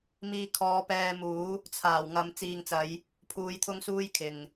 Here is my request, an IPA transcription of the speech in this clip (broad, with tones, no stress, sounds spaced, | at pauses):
m iː˧ kʰ ɔː˨˧ p ɛː˧ m uː˨˥ | t͡sʰ aː˨˩ w ŋ ɐ˨ m t͡s iː˨ ŋ t͡s ɐ˨˧ j | pʰ uː˨˧ j t̪ʰ ʊ˥ ŋ s uː˥ j kʰ ɪ˨ ŋ